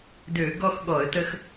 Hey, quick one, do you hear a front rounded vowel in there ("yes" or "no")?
yes